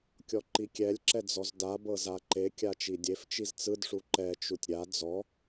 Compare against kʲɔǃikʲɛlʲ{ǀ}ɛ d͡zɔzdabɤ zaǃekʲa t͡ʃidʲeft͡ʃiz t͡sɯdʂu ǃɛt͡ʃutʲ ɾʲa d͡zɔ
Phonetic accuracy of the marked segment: incorrect: ǁ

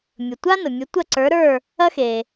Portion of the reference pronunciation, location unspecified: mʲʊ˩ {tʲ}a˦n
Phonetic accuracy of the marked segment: incorrect: tʷ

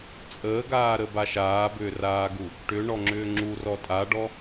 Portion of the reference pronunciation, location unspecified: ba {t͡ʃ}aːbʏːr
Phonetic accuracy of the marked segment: incorrect: ʃ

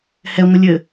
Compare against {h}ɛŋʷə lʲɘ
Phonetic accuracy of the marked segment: correct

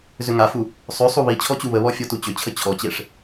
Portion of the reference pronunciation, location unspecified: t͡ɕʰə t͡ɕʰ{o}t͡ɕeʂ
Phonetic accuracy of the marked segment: incorrect: ɔ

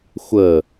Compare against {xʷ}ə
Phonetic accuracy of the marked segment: correct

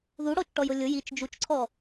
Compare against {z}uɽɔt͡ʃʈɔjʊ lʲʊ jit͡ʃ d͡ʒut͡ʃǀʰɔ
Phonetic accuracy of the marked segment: incorrect: ð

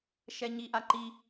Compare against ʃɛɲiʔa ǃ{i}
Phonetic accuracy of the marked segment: correct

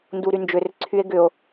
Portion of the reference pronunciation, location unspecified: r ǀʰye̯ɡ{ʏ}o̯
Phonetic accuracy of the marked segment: correct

